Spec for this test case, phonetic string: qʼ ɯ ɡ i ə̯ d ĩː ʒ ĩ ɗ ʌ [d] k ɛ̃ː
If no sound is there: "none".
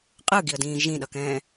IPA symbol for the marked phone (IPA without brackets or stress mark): none